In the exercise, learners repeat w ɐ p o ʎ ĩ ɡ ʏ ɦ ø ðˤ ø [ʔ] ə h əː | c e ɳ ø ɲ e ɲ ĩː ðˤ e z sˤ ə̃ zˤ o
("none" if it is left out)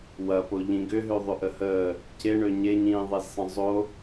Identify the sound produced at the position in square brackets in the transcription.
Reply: ʔ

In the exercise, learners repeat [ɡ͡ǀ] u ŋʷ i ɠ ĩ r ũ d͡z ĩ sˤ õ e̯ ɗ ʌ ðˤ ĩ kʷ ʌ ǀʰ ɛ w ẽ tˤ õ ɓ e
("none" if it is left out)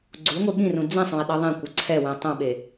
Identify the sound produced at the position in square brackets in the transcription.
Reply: ɡ͡ǀ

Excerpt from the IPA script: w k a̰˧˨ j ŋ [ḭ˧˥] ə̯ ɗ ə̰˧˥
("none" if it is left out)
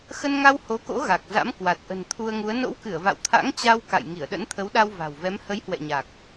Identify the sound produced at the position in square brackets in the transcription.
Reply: i˧˩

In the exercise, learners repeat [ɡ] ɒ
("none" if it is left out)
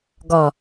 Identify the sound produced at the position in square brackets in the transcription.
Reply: ɡ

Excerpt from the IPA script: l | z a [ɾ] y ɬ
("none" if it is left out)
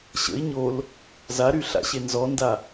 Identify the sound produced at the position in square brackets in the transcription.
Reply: ɾ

